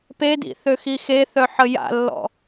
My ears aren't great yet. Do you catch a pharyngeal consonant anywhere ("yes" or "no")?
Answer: yes